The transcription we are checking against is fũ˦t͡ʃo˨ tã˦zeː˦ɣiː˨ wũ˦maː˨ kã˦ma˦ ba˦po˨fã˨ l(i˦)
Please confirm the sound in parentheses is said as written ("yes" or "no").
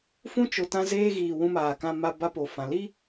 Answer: yes